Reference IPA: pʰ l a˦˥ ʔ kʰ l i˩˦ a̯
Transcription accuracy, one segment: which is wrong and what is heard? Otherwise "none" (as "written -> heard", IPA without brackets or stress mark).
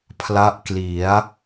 kʰ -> k